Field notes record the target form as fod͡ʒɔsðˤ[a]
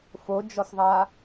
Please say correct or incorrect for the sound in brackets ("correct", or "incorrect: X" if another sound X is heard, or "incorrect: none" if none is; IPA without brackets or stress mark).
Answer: correct